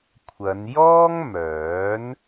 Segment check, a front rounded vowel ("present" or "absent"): present